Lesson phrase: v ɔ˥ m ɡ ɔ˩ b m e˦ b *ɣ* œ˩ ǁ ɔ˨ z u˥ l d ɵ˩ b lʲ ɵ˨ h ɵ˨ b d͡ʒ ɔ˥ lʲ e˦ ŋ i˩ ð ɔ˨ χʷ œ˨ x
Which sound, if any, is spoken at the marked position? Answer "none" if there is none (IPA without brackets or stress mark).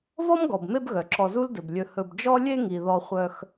ɣ